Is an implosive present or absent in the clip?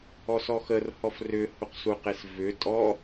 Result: absent